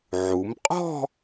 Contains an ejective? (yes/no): yes